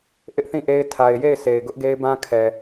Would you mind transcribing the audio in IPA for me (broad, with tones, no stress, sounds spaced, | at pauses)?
ʔ ɪ˦ ʔ θ ĩ˦˨ ʔ e˦ ɪ̯ tʰ a˨ ɪ̯ j e˦˨ ɪ̯ s e˨ ɪ̯ ɡ ʊ˦ ʔ ɡ e˦ ɪ̯ b ã˦ kʰ ɛ˨